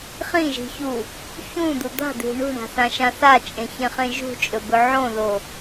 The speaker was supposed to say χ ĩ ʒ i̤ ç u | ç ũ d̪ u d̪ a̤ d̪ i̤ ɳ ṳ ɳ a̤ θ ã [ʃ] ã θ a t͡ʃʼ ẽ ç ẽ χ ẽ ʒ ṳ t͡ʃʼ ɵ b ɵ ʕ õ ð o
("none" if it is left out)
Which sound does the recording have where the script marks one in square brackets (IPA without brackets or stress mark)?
ʃ